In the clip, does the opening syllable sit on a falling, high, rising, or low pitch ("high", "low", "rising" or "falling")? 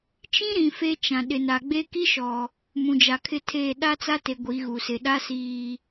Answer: high